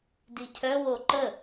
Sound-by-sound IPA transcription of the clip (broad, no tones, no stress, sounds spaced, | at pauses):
d i cʰ œ w o ǃ ə